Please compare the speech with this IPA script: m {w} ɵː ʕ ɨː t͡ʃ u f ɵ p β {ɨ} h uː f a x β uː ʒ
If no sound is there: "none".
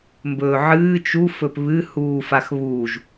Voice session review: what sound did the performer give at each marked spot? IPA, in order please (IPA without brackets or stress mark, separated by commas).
b, ɨ